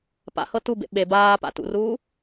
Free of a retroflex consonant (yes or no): yes